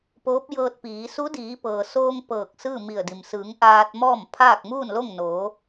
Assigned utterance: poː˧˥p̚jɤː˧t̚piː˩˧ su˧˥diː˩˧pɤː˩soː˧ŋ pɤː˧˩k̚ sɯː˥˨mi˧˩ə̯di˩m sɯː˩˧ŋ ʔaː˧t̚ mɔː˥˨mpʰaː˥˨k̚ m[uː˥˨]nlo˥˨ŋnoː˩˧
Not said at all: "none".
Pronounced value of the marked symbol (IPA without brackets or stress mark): uː˥˨